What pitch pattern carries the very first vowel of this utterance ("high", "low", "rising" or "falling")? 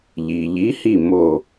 low